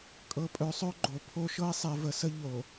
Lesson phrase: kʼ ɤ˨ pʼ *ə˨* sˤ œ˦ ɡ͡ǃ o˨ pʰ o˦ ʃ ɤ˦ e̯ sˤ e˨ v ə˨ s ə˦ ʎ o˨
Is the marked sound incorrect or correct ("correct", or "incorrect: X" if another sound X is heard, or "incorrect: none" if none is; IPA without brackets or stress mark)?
incorrect: œ˨